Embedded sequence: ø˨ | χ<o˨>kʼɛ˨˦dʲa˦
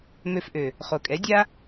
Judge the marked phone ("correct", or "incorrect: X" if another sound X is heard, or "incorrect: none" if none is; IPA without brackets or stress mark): correct